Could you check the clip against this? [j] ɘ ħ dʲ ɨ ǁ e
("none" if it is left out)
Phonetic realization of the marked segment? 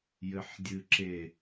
j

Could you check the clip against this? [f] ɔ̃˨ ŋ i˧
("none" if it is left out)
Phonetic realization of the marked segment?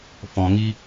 f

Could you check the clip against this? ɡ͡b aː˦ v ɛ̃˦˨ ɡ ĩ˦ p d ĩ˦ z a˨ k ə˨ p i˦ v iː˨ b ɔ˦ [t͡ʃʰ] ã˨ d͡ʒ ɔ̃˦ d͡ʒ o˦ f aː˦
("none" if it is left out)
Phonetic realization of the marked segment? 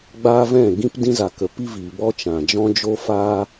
t͡ʃ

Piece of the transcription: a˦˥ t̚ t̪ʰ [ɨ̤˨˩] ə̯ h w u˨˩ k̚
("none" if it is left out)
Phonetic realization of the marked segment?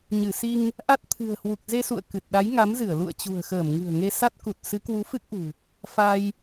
ɨ̤˨˩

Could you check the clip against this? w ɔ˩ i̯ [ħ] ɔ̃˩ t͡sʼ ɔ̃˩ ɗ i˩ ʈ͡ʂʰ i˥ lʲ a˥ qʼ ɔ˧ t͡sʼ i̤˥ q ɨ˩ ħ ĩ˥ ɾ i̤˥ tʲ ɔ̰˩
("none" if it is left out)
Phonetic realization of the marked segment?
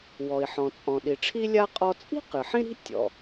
ħ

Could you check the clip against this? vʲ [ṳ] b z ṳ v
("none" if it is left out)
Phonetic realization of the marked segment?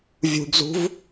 ṳ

